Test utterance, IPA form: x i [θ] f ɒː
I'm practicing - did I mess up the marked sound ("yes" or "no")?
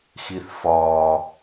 no